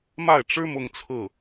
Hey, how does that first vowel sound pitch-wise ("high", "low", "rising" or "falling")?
falling